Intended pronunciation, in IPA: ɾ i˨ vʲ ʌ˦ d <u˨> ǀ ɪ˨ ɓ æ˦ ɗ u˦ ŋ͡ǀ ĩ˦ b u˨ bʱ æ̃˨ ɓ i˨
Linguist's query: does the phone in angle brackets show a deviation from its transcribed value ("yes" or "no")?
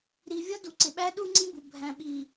no